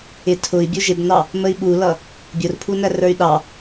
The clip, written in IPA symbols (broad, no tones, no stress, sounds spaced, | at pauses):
ɪ tʰ ʊ i̯ bʲ u ʒ ɪ b n ɑ | m ə i̯ ɓ u l ʌ | bʲ ʊ r pʰ u n æ r ə˞ y̯ ɗ ɑ